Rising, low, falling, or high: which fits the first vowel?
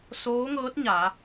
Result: rising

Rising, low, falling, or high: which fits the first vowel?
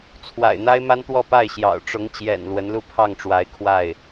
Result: low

